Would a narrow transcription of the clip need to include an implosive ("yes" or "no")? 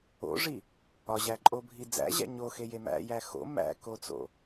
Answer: no